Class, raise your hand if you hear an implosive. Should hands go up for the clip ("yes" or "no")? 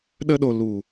yes